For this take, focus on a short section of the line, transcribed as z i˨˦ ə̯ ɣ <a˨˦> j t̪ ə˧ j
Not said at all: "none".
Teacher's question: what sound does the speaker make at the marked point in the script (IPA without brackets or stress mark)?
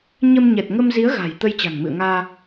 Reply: a̤˨˩